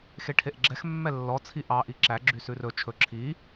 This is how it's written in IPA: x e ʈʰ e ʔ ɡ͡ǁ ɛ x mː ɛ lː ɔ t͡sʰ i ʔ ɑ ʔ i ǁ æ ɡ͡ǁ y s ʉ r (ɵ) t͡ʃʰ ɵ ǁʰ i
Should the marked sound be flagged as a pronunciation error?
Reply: no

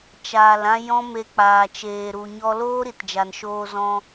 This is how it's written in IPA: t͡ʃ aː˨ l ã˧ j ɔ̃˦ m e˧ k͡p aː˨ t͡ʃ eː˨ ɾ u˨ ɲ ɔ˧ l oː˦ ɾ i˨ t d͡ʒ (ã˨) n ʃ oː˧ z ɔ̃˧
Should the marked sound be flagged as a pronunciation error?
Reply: yes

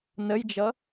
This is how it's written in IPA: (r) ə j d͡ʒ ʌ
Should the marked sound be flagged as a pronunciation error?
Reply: yes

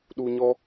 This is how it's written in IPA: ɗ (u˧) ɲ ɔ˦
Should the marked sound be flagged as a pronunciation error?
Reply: no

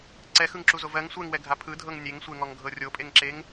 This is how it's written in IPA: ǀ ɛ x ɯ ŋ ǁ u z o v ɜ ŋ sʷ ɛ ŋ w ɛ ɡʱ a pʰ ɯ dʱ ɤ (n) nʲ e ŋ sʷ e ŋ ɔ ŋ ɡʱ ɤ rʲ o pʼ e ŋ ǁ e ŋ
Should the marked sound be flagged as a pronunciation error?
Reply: yes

